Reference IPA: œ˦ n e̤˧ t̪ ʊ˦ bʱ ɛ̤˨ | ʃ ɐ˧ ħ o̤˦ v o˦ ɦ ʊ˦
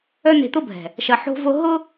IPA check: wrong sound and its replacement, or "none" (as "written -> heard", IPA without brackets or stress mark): none